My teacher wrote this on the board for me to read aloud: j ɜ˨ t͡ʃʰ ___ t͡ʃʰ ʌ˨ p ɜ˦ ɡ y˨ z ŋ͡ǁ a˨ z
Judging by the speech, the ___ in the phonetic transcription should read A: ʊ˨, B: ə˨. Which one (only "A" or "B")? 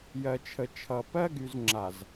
B